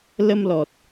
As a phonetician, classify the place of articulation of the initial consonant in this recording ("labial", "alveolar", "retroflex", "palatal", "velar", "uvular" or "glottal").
alveolar